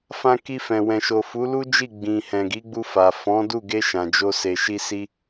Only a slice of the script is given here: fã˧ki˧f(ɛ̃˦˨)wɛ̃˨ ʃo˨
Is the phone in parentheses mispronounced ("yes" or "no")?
yes